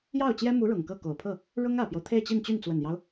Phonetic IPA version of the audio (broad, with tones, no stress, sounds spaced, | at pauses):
j ɑ˥˩ ʊ̯ t͡ɕ j ɛ˥ m u˧˥ ɻ ʊ˨˩ ŋ k ɤ˥˩ k o˨˩ ʊ̯ pʰ ɤ˥˩ | ɻ ʊ˥ ŋ ä˨˩ p j o˦ ʊ̯ t̪ʰ e˥˧ ɪ̯ t͡ɕ i˥˧ n t͡ɕ y˥˩ n t͡s w ə˨˩ n j ɑ˦ ʊ̯